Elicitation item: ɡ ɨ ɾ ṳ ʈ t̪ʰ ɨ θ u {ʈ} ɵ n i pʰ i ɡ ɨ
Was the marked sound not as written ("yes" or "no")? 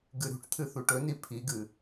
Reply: no